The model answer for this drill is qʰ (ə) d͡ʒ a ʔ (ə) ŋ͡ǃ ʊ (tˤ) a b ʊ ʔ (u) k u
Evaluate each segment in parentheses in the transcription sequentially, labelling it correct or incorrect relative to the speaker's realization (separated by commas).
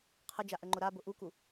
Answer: correct, correct, incorrect, correct